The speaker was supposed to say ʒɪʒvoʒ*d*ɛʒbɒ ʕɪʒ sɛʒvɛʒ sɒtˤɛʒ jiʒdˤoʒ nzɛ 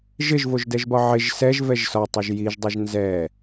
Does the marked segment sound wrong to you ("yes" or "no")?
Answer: no